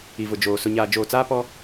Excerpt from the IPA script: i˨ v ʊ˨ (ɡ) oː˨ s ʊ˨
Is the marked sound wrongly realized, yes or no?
yes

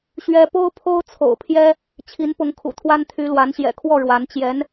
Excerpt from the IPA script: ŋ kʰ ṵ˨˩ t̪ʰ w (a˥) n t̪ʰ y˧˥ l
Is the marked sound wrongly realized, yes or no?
no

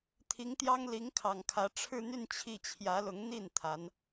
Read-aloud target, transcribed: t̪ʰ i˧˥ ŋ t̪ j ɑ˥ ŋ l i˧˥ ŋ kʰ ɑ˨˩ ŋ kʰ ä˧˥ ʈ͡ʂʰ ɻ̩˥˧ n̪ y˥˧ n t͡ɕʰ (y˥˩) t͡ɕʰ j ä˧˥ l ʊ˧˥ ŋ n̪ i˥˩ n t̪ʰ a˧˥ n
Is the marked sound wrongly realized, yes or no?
yes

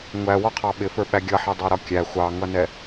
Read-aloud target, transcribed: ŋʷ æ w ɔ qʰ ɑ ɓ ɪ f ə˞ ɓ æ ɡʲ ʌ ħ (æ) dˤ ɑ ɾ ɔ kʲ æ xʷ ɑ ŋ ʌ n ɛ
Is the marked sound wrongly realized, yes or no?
yes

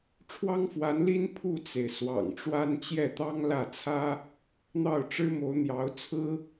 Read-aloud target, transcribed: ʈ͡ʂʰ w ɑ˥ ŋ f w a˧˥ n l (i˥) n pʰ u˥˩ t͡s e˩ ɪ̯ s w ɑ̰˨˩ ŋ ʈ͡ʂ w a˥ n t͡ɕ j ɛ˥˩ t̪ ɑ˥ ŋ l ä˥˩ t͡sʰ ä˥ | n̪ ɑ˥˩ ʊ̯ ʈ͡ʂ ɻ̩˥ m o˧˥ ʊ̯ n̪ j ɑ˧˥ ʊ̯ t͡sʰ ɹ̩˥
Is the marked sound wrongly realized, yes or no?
no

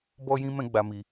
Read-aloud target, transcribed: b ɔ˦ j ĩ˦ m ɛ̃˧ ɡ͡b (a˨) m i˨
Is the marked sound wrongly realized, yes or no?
no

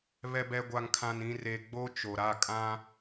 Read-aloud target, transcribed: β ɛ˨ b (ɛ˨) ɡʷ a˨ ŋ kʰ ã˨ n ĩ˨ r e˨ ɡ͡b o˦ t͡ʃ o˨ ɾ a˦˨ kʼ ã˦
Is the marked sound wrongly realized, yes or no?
no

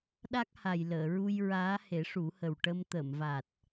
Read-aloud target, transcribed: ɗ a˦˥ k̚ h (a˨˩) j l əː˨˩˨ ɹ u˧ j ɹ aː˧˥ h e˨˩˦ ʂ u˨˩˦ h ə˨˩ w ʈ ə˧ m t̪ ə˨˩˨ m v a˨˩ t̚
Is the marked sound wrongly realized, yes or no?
no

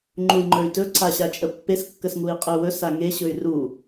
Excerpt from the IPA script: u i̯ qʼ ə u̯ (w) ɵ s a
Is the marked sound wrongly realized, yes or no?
no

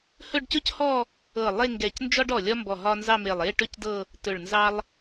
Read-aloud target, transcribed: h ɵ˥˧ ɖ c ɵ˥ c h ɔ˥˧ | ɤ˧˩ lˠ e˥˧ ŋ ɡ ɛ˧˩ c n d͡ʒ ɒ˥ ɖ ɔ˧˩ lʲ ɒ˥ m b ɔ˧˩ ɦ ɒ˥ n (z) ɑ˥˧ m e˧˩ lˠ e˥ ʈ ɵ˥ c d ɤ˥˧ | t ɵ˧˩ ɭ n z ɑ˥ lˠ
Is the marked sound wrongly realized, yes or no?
no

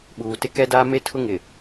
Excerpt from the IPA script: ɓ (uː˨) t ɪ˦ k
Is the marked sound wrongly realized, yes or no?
no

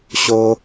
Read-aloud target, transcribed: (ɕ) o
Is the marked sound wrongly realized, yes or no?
no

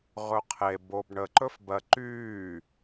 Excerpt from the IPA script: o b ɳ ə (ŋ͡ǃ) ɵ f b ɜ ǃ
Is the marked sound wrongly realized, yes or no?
yes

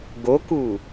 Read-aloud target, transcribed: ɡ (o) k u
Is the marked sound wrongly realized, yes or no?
no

